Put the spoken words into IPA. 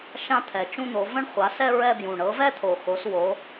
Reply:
ʃ ã˥˧ t̪ʰ ɛ˨˩ t͡ʃ ũ˥˧ n̪ o˨˦ v ə̃˥˧ ɳ χʷ a˨˦ s ɛ˥˧ ɹ ɛ˥˧ b j ũ˨˩ ɳ ɤ˨˦ v ɛ˥˧ t̪ʰ o˨˩ x o˨˦ s w o˨˦

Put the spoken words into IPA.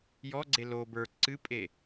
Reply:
j ɔ ɡ͡ǀ e l o b ə˞ ǀ ɨ pʼ e

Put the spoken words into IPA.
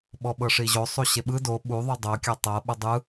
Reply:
ɓ ɔ ɓ ɤ ʂ i ʑ o sˤ u ɕ e ɓ ɯ d o ɓ u ðˤ u dˤ o kʲ a tˤ ɤ ɓ ɯ dˤ ɯ

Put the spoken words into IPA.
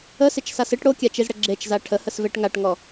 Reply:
ə s ɪ t͡ʃ s a s ɪ ʈ ɽ o kʲ a t͡ʃ i z ɽ ə ɡ͡ǁ e t͡ʃ z a ʈʰ ə h ə s v e ʈ ŋ a ʈ ŋ ɔ

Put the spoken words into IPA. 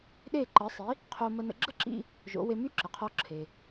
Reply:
ɗ e˥˩ ǃ ə˩˥ sˤ i˩˥ | qʰ o˧ m ə˧ n ə̰˧ ɡ͡ǁ ə˥ ǁ ḭ˧ | ʒ o̰˩˥ w e˧ m y˥ ǁ ə˩ qʰ ɔ˧ ǁʰ e˩

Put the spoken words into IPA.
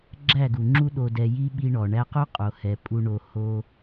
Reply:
ɡ͡ǁ æ˦˨ ɡ u˨ ŋ͡ǁ u˦ ɗ o˧ d ɛ˧ j i˦ ɓ i˧ ɳ ɔ˨ ɳ æ˧ q o˦ qʼ o˨ h ɛ˨ pʼ u˧ ɳ o˧ h o˦

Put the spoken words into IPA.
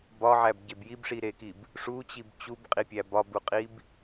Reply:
b ɒ ʕ æ b ɟ e b j i b ʂ i ɾ e k i b | ʂ u t͡ɕ i b t͡ɕ u b qʼ i pʲ æ b ɒ b u qʼ i b

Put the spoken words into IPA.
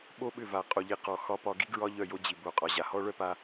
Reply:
ɓ o˦ ɓ ʏ˦˨ v a˨ qʼ o˨ ʎ i˨ q ɔ˨ x ɒ˧ p ɒ˧ ɡ i˦ ɡ ɹ ɒ˦ ʎ œ˦˨ j o˦ d͡ʑ i˨ b o˨ qʼ ɒ˨ ʑ a˨ h ɔ˦ ɭ œ˦ p a˧

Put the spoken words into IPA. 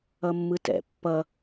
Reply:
ʌ mː ɯ t ɛ̰ pː ʌ

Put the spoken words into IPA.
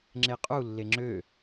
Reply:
ŋ͡ǁ e qʼ u lː e ŋ͡ǁ ø

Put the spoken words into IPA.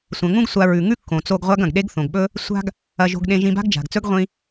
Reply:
sʷ ɐ̃˩ ŋ ũ˥ ɡ sʷ a˧ ɹ ʉ˩ ŋ ʉ˥ kː õ˩ t͡s o˧ ɡ ʁʷ a˥ ɡ ɐ̃˩ ɡ ɗ e˥ ɡ θ õ˩ ɡ ɓ ɵ˥ | sʷ a̤˥ ɡ | ɐ˧ ʒ o̤˧ ɡ ɗ ẽ˧ ʒ ĩ˧ b a̤˥ ɡ d͡ʒ a̤˩ ɡ t͡s ɵ˥ ɡ ʁʷ ĩ˧

